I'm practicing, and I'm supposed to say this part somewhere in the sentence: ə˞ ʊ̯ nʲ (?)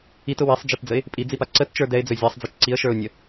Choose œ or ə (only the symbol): ə